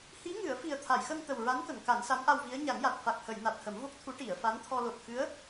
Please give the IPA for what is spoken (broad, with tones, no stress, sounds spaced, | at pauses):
h i˧˥ ŋ ɨ˨˩˦ ə̯ f i˨˩ ə̯ t̪ʰ a˨˩˨ j x ə˧ ŋ t̪ ə˨˩ w ɹ a˧˥ n k ə˨˩˨ ŋ k a˨˩˦ n s a˧˥ m ʔ a˧ w v i˧˥ ə̯ ɲ a˨˩˦ ŋ j a˨˩ t̚ f a˨˩ k̚ h ə˨˩˨ j n a˨˩ t̚ h ə˨˩˦ m v o˦˥ k̚ t̪ʰ u˧˥ ʈ i˨˩˨ ə̯ f a˧˥ n t̪ʰ ɔ˧ l o˨˩ t̚ x ɨ˧˥ ə̯